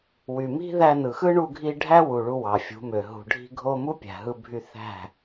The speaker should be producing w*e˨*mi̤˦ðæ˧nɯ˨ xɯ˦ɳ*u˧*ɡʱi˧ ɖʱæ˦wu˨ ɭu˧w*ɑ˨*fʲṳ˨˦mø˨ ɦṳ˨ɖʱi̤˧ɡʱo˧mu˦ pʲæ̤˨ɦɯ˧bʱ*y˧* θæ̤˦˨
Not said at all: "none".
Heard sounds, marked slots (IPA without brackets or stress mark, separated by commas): y˨, u˧, ɑ˨, y˧